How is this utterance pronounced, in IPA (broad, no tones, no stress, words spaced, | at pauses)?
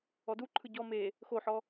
ɔdu ǃʰɯɟɔ me | xoħɔ